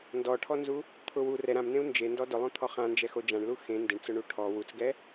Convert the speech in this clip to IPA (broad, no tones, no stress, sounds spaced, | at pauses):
n d ɔ ʈʰ ɔ n z u | t̪ʰ ʊ w u r ɛ ɾ ã m n̪ ẽ u̯ n d͡ʒ e n d ɔ d ʊ lˠ õ t̪ʰ ɔ χ ã n d͡ʒ ɛ x o d͡ʒ ã ɳ l u x ẽ n d ɪ ɳ t͡s ʊ ɳ u ʈʰ ɔ w u t͡s ɡ ɛ